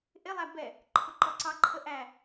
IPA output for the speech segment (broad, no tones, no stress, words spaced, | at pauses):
ʔɪlˠæ bɛ | ǃʰʊǃɔǀɑǃʰə ʔæ